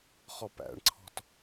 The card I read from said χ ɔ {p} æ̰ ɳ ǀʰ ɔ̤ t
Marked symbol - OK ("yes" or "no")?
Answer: yes